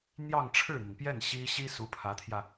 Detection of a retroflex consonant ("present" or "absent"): present